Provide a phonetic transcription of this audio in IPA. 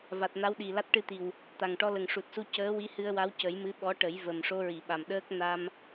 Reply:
v a˨˩ t̚ n a˧˥ w ɗ i˨˩ l a˦˥ t̚ ʈ ɨ˧ t̪ i˨˩ w | t̪ a˨˩ ŋ ʈ ɔ˧ l ə˨˩ ŋ ʂ u˨˩ t̚ s u˧ c əː˧˥ w i˧˥ h ɨ˧ ə̯ w a˧˥ w c ə˨˩˦ j m ɨ˧˥ ɓ ɔ˧˥ ʈ ə˨˩˦ j v ə˨˩ m ʂ o˧ ɹ i˨˩˨ ɓ a˨˩ m ɗ əː˦˥ k̚ n a˧ m

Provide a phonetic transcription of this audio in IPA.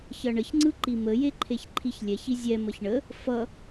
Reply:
ç ʌ ɳ ə ç ŋ͡ǀ ɯ ǃ i m ə j e ǃʰ e ç ǃʰ i ç lʲ ɛ ç i zʲ ɛ m ʌ ç ɳ ə | f ʌ

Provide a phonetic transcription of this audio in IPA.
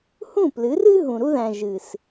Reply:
h ũ˦˨ p l ɨ˨˦ r ɨ˦ ɦ ũ˨ ɾ u˦ ð æ̃˨ ʒ ɨ˨ s

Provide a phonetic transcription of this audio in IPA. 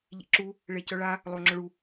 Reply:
ʎ ḭ ǁ u | ɭ e c œ ɭ a | lˠ o ŋ͡ǁ œ ɭ u

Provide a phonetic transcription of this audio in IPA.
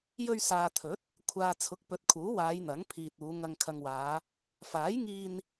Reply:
j ɵ˧ ɥ s aː˨ t̪ʰ ɵ˨˥ t̚ | kʷʰ aː˨ t͡sʰ ʊ˨˥ k̚ p ɵ˨˥ t̚ kʰ uː˨˥ w aː˨˧ j n̪ ɐ˨˥ ŋ pʰ iː˨ t̚ uː˨˧ ŋ ɐ˨ ŋ kʰ ɐ˨ ŋ w aː˨˧ | f aː˨˥ j ŋ iː˧ n

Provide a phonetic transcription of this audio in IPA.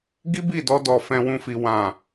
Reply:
ɡ i˦ b i˦˨ d ɔ˧ d ɔ˨ f ɛ̃˧ w ũ˧ f i˨ w ã˨

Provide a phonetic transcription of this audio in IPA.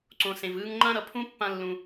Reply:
ǀ õ˨ s ẽ˨ v ɯ˦ ŋ ŋ͡ǃ ã˥ ɾ ʌ˨ pʰ ũ˥ pː ã˦ lː ũ˨

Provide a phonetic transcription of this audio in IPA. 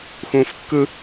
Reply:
x ũː f kː ɯ

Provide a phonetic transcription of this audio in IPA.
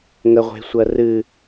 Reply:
ŋ ə ʁʷ e̤ sʷ ɜ r ɨ

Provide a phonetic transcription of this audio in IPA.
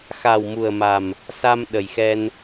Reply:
x a˨˩ w m u˨˩ ə̯ m a˨˩ m | s a˧ m ɗ ə˨˩ j x ɛ˧ n

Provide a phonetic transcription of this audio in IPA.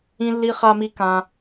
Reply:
ĩ˧ lː i˧ χ a˧ m i˧ k ã˧

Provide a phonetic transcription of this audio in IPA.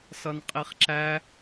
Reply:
s ʌ n qʼ i χ ǁ æ

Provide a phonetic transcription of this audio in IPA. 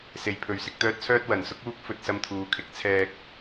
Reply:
s e˧ j pʰ ɵ˧ ɥ s ɪ˧ k̚ t̪ œː˥ t̚ t͡sʰ œː˥ t̚ w ɐ˨ n s ʊ˥ k̚ uː˥ k̚ f ɵ˧ t̚ s ɐ˧ m t̪ʰ uː˨˧ kʰ ɪ˨˥ k̚ t͡sʰ ɛː˧ k̚

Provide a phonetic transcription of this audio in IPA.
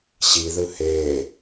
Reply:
ɕ i ð ɯ h eː

